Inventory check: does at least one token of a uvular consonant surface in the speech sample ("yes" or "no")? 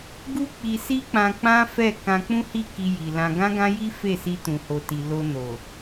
no